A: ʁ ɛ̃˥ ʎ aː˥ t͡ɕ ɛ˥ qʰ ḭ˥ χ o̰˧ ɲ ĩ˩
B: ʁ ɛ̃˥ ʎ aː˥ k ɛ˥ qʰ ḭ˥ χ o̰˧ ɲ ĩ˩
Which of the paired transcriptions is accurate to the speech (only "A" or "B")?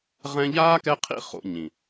B